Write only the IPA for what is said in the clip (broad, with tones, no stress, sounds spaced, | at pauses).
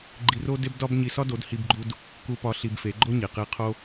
ɡ͡ǃ i˧ r o˦ d e˦ b d ɒ˦ b ɲ i˧ s ɒ˦ d o˨˦ d h i˧ b ɡ͡ǃ u˧ d | k u˧ p ɒ˧ ɬ i˧ b f e˨˦ ɡ͡ǃ o˦ ɲ i˨ q i˧ qʰ o˧